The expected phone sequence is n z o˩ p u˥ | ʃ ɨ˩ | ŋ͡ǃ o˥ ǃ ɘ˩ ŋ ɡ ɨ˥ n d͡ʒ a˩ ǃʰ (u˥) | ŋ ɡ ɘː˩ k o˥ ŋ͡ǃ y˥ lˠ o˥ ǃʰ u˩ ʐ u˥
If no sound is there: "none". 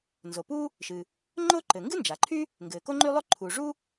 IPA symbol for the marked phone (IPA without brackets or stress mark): y˥